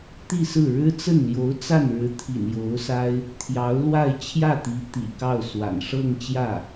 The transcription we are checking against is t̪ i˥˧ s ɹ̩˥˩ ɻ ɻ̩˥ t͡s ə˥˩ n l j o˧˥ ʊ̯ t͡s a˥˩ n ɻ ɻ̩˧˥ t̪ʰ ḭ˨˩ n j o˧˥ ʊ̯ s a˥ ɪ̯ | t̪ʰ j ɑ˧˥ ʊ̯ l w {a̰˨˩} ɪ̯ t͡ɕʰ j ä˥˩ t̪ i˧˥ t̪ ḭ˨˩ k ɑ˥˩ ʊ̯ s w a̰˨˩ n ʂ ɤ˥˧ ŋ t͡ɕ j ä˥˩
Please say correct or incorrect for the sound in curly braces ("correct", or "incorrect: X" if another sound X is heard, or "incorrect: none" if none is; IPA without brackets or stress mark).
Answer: incorrect: a˥˧